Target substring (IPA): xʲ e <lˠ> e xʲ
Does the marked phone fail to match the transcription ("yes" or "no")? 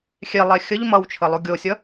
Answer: no